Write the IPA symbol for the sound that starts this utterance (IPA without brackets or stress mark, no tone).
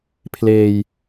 pʰ